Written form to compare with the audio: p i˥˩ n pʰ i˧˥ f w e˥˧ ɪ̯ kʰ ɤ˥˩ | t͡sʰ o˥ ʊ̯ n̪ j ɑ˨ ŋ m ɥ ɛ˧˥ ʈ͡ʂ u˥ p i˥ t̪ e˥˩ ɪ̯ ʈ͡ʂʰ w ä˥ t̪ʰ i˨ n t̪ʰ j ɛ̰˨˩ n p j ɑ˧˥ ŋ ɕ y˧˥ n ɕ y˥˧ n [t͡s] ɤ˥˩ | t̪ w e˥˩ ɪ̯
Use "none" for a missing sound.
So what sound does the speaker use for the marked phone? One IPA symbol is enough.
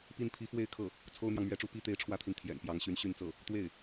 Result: t͡s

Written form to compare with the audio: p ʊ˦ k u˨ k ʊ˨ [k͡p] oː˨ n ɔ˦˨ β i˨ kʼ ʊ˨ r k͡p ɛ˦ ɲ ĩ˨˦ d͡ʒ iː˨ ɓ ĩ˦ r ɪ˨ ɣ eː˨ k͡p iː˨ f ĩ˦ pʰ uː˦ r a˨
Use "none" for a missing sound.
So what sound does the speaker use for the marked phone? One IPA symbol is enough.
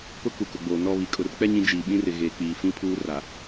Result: ɡ͡b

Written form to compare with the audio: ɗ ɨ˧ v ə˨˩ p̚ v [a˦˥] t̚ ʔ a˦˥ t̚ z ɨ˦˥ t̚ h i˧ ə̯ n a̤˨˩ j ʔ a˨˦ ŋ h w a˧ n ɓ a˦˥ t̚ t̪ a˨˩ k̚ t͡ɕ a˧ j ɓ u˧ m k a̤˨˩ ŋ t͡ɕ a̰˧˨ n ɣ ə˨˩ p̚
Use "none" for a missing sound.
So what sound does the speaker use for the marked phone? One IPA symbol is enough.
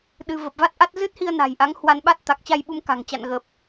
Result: a˦˥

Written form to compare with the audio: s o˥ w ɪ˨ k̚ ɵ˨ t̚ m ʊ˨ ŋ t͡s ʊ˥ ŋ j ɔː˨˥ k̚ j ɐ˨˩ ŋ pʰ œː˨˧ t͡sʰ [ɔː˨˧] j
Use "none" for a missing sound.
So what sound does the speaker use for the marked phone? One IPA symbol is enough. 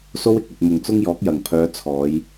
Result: ɔː˨˧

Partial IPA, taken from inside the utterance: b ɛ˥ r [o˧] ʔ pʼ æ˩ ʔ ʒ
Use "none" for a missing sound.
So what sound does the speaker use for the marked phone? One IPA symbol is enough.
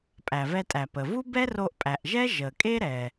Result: o˧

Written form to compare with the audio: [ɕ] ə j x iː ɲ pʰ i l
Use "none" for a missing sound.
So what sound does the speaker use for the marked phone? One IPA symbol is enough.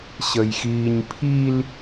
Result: ɕ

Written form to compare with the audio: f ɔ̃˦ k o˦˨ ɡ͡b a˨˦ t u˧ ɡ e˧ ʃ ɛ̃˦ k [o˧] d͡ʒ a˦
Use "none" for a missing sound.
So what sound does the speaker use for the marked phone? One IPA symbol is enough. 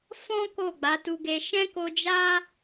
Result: o˧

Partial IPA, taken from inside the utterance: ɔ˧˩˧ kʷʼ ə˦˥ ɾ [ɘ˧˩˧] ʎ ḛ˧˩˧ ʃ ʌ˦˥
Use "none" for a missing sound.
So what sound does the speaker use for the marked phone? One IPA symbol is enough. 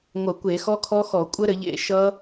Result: ɘ˧˩˧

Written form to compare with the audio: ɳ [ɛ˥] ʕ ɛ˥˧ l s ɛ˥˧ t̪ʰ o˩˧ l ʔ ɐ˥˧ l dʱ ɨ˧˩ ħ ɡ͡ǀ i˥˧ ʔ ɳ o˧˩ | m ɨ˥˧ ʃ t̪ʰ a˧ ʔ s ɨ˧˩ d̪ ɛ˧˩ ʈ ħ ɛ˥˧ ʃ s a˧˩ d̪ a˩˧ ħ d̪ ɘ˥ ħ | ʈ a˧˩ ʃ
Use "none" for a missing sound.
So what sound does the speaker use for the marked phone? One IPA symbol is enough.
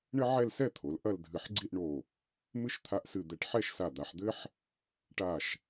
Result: ɘ˥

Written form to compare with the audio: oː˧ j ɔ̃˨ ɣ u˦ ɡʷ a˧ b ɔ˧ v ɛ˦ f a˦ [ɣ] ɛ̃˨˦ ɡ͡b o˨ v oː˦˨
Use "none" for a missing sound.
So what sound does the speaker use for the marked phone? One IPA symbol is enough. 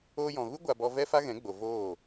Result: ɣ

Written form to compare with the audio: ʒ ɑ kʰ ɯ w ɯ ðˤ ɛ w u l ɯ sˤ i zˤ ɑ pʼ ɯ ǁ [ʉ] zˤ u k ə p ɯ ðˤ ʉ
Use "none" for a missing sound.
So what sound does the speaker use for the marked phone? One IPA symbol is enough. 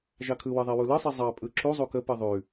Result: u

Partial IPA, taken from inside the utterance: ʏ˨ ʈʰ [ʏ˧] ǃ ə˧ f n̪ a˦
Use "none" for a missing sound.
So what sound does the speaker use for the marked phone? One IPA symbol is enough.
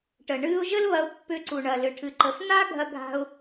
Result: ɨ˧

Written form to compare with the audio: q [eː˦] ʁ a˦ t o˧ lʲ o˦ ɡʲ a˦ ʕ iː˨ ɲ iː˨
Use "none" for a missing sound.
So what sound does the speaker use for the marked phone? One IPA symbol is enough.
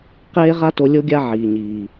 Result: eː˦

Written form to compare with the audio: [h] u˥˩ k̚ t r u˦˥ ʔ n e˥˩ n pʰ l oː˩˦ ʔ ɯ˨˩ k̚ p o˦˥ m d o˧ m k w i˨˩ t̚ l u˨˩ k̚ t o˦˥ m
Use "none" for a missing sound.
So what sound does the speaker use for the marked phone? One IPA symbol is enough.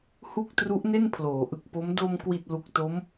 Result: h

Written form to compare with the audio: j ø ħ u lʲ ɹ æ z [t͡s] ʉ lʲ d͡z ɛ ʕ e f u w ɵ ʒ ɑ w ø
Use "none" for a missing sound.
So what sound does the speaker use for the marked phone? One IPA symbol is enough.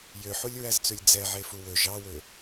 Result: t͡s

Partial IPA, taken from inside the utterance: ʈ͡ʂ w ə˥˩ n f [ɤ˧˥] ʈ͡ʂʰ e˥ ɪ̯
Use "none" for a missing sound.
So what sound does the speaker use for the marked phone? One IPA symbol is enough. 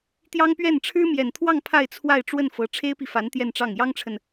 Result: ɤ˧˥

